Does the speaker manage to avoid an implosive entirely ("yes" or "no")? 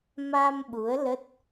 no